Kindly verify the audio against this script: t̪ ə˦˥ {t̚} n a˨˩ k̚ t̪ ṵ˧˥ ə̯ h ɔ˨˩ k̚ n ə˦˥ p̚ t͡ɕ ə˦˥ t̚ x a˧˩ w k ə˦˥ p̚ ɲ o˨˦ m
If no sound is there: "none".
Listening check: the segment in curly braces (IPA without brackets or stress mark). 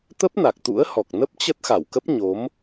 p̚